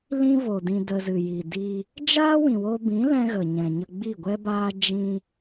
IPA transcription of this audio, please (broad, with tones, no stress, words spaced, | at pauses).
lĩ˦vo˨dĩ˧ də˧zɨ˨ji˨ di˧ | d͡ʒaː˦wĩ˨wo˧bĩ˨˦ lɛ̃˦ɣə˨ɲɛ̃˨ɲə˧ ɡ͡bi˦˨ɡʷɛ˦baː˦ d͡ʒĩ˧